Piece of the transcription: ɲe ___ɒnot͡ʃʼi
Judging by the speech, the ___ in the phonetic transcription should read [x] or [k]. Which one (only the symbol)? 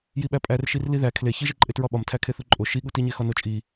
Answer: x